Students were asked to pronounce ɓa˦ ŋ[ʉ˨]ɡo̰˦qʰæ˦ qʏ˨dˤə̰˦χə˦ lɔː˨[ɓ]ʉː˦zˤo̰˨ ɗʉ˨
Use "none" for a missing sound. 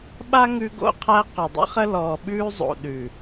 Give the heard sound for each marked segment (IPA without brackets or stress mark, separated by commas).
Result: ʉ˦, ɓ